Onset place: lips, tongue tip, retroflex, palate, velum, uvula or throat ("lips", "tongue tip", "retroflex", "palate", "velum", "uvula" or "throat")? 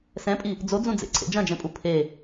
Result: tongue tip